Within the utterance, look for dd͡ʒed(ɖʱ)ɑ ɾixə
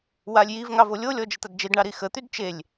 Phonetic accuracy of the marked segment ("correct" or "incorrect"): incorrect